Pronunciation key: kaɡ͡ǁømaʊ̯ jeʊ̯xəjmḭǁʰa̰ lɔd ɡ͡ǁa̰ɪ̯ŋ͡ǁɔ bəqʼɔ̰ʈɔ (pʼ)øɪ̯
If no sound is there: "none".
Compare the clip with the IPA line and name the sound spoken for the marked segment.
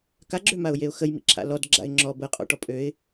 pʼ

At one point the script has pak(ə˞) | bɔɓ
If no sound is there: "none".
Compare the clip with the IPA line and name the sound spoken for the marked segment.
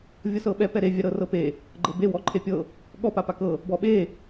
ɤ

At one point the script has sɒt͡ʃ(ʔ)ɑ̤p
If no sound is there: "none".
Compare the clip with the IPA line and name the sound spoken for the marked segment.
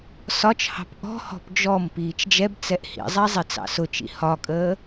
h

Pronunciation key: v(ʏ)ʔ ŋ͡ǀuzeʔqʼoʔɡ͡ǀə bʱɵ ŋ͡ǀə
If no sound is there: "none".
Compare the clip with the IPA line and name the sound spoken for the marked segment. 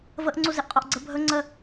ə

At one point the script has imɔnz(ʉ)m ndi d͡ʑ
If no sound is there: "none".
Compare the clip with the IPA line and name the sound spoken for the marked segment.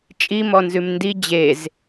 ʉ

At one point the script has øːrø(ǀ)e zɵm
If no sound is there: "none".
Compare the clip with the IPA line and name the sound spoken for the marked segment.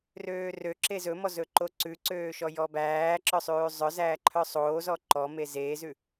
ǁ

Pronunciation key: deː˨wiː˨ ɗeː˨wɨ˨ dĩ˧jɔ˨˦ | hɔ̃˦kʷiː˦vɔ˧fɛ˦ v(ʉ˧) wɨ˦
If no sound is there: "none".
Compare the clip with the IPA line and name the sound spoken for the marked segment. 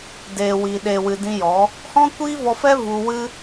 u˧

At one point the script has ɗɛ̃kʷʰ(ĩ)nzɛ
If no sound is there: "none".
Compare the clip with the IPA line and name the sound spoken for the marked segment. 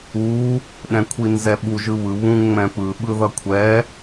i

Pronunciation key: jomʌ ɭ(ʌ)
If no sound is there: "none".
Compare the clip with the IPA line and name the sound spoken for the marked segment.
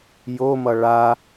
a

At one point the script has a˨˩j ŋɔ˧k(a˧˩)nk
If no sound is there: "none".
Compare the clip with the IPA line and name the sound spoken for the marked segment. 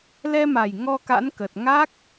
a̰˧˥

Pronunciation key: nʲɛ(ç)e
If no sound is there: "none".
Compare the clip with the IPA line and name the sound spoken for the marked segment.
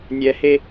h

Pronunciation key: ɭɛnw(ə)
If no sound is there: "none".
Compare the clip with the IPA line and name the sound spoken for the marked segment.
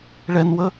ə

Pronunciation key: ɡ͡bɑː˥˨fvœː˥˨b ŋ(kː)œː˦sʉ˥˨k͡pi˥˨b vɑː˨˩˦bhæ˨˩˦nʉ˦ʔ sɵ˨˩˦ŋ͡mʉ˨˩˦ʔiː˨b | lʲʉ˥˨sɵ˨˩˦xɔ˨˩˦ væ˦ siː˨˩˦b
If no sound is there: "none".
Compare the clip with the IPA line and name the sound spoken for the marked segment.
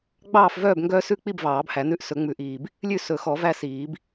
ɡ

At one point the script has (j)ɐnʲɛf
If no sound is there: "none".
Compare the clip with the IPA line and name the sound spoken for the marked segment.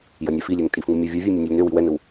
j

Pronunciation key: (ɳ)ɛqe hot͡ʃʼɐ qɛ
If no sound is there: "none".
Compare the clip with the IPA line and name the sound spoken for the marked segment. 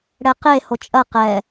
ɽ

